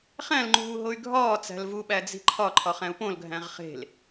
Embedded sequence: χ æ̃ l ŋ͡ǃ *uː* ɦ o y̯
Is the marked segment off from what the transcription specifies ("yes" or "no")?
no